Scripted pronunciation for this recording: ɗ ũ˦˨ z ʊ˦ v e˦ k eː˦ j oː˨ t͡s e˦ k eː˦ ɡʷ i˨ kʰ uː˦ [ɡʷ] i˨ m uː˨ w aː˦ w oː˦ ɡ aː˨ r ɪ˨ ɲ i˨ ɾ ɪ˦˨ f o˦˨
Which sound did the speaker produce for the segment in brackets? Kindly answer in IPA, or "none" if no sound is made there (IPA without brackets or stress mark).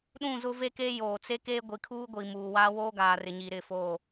ɡʷ